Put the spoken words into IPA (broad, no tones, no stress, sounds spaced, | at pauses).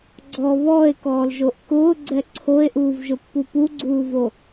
ɡ͡ǀ ɔ β ɔ e̯ k ɔː l ʒ o ʔ k ʊː ɡ͡ǀ ɛ ǀʰ o e̯ ʔ uː v ʒ ʊ pː u p u ɡ͡ǀ uː v o